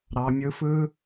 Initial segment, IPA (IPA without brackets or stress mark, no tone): ɾ